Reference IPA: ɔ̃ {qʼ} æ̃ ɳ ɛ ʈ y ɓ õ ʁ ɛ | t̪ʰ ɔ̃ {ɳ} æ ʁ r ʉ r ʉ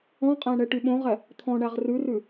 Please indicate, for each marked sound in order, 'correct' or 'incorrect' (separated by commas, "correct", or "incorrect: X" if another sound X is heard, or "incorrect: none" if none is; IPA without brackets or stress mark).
correct, correct